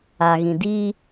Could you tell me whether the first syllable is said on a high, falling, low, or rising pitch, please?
low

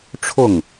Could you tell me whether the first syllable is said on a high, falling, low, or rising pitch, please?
falling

